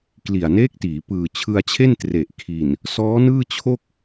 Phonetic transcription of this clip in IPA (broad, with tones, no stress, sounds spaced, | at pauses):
k l i˨˩ a̯ n eː˦˥ k̚ t iː˩˦ p ɯː˨˩ t͡ɕʰ ɯ˧ a̯ t͡ɕʰ e˥˩ n t r e˨˩ ʔ kʰ i˨˩ n | s ɔː˦˥ n ɯː˥˩ t͡ɕʰ o˥˩ k̚